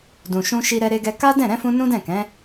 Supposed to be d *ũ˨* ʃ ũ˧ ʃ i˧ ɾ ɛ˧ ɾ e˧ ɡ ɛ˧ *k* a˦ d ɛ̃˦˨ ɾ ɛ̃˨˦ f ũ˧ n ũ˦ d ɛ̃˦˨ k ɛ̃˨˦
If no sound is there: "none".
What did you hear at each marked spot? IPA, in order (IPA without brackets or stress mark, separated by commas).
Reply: ũ˨, k